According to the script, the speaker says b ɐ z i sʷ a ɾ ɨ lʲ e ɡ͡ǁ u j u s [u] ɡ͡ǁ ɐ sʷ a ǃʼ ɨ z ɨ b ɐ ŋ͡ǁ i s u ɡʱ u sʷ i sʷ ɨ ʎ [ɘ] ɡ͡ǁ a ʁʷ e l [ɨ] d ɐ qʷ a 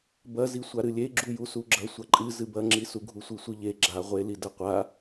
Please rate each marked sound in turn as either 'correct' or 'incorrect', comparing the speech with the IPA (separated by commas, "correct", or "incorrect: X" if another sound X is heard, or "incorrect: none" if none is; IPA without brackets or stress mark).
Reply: correct, incorrect: e, incorrect: i